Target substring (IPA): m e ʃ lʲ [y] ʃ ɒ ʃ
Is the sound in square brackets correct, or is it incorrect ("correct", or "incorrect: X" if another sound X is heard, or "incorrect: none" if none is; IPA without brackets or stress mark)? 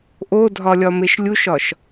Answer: incorrect: u